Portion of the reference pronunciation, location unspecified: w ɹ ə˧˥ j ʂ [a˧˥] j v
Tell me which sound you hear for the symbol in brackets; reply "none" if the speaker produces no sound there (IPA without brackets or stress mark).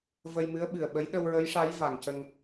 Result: a˧˥